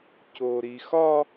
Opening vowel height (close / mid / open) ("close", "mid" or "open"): mid